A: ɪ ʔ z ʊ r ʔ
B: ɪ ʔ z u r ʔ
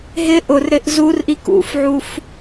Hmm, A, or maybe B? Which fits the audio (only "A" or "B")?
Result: B